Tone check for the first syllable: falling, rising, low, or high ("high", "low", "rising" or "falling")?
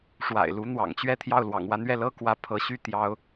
low